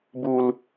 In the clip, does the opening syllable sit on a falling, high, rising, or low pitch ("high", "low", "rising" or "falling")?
low